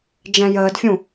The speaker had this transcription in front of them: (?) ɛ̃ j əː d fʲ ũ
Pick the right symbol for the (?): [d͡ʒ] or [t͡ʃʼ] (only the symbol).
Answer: d͡ʒ